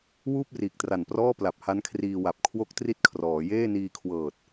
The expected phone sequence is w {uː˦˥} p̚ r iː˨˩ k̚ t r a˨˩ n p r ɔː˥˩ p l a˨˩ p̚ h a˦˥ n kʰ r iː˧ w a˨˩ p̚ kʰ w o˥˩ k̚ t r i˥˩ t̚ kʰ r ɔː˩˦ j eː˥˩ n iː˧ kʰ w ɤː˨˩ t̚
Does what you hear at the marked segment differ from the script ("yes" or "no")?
yes